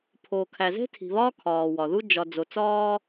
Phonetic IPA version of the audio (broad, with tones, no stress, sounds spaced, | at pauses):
pʰ oː˨ kʰ æ˨ z e̤˦ tʰ i̤˨ β ɒː˦ kʰ ɒː˨ w ɒ˨ ð u˦ d͡ʒ ɒ˨ d͡z o˨ t͡s ɒː˦